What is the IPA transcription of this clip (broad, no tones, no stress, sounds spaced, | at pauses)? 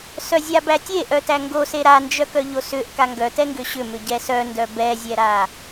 s œ zʲ a b æ tʲ e ʔ œ t æ ŋ ɡ o s e ɾ a n d͡ʒ œ k œ ʎ o s ʏ ʔ k a ŋ ɡ œ t ɛ ŋ ɡ ʏ ɕ ʏ m ʏ ɟ ɛ s œ n d œ b ɛ zʲ ɛ ɾ a